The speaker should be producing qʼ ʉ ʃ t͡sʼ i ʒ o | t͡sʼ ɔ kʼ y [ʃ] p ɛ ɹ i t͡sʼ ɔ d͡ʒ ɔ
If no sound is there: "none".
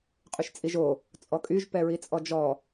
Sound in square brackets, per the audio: ʒ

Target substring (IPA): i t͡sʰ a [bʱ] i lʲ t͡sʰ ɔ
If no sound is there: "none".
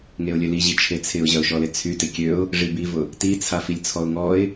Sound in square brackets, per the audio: f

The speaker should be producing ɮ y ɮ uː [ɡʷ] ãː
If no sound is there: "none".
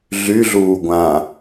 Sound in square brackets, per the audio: ɡʷ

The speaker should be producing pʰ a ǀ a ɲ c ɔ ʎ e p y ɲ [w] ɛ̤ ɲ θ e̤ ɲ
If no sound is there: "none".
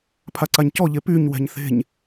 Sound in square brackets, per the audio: w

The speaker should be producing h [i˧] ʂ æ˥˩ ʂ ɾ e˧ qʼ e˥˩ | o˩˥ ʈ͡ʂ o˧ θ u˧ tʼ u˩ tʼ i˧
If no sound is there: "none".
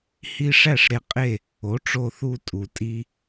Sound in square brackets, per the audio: i˧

